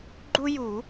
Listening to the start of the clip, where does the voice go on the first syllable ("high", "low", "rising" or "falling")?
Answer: high